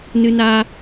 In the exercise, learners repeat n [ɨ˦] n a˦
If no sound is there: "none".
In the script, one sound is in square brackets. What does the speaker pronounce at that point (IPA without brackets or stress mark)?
ɨ˦